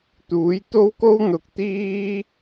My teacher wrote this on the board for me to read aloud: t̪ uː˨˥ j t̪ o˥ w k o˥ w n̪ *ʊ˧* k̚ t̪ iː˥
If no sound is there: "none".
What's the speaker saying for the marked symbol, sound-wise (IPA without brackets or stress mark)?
ʊ˨˥